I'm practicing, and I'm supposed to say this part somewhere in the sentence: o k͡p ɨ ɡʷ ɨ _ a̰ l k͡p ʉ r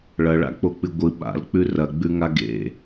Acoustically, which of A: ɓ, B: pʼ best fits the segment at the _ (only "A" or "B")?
A